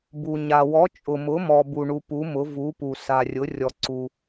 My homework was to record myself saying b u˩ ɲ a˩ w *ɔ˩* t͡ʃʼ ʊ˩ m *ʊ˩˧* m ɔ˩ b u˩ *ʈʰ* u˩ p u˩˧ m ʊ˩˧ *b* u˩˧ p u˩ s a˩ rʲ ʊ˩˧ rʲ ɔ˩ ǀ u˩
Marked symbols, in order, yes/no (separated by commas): no, yes, no, no